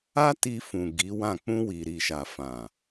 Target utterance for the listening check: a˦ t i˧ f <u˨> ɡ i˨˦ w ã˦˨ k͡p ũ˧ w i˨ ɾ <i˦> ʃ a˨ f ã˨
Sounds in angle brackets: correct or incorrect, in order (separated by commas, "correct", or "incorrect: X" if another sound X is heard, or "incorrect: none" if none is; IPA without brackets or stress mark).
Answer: incorrect: ũ˨, incorrect: i˨